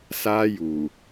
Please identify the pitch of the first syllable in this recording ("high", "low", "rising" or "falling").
high